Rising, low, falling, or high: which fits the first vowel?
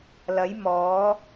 rising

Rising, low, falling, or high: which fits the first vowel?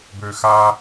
low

